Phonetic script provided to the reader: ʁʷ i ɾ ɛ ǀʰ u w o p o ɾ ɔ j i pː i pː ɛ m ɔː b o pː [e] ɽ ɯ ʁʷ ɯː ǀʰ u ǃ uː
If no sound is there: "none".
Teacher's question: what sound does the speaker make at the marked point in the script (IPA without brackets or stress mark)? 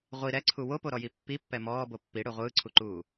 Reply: i